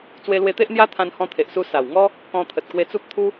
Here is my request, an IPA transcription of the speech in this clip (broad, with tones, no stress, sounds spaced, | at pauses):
t͡s w e˧ l w e˧ t̪ e˦ ʔ n̪ j a˦ t̪ʰ ã˧ n h ɔ̃˧ t̪ʰ e˨ ʔ s u˧ s a˨˩ w ŋ ɔ˦ | k ɔ̃˧ t̪ʰ ə˨ t̚ k w e˧ t͡s u˦ p̚ t̪ʰ u˦